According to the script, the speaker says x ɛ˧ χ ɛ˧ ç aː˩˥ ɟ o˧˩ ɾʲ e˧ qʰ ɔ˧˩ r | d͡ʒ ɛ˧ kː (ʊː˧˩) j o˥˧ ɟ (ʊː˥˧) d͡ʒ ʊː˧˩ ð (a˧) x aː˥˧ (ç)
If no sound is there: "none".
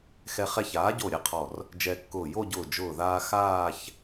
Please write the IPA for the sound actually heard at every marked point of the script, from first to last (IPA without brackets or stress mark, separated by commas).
ʊː˧˩, ʊː˧˩, aː˧, ç